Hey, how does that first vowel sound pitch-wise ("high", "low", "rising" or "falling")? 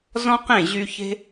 high